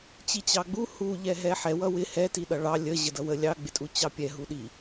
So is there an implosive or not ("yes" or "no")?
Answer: yes